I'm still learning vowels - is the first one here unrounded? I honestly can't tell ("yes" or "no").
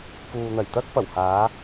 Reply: no